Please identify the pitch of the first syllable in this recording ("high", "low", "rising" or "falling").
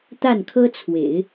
falling